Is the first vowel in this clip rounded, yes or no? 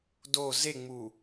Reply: yes